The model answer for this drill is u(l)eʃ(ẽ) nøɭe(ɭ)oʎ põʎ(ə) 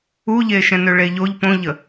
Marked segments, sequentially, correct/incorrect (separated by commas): incorrect, incorrect, incorrect, correct